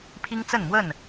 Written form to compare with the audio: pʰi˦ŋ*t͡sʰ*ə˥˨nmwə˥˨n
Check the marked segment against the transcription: incorrect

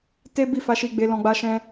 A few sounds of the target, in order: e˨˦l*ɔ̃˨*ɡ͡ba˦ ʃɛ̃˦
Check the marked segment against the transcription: incorrect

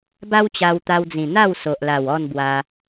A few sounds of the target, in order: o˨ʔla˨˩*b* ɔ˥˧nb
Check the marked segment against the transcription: incorrect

